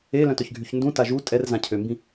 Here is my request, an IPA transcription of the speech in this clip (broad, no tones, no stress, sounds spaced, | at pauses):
e l œ̃ t œ ç ɡʱ y ç n d ũ t a ʒ u tʼ ɛ r z ã cʰ ø m b ĩ